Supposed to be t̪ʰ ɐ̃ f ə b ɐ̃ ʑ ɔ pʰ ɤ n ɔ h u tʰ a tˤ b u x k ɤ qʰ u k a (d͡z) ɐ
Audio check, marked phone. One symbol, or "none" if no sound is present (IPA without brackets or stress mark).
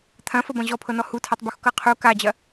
d͡ʑ